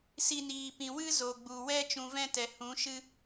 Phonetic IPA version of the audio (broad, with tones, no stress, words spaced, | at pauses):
si˦niː˧ pĩ˨wɨ˦ zo˨ɡ͡bu˨wɛ˦ t͡ʃũ˧vɛ̃˦tɛ˨hũ˨˦ ʃɨ˦